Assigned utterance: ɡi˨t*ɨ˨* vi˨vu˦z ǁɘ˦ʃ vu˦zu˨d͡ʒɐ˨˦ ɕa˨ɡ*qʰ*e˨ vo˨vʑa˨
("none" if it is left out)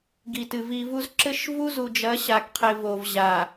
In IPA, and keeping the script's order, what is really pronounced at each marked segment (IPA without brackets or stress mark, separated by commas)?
ɨ˨, qʰ